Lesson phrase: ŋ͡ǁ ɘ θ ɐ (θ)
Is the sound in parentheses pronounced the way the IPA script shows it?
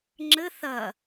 no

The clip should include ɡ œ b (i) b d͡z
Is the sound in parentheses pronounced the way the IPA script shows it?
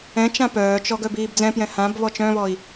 no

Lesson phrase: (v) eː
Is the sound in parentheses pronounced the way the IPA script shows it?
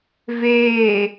yes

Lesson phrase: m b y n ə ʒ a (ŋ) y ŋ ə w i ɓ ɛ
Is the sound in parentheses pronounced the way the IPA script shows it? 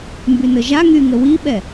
yes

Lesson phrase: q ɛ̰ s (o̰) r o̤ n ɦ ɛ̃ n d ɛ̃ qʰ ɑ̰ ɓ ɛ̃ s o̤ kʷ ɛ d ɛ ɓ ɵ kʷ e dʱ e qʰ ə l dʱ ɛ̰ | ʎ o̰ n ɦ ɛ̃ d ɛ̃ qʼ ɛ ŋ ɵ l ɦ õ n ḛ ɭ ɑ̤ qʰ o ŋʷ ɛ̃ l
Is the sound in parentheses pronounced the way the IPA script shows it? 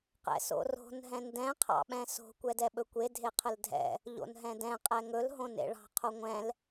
yes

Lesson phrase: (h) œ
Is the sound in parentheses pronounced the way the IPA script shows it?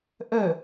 no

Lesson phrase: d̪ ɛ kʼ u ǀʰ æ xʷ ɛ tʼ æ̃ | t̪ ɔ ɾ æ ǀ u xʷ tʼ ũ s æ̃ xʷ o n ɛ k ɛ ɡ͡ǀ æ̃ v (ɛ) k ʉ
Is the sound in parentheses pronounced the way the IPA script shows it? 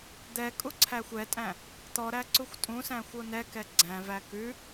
no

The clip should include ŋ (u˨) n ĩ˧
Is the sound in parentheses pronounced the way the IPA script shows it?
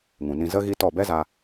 no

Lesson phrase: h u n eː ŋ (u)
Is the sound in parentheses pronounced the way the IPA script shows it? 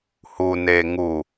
yes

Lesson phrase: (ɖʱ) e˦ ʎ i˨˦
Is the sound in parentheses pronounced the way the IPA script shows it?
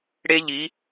no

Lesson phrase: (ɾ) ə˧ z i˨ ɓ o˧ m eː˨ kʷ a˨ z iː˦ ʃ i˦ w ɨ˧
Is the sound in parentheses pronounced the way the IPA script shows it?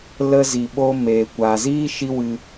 no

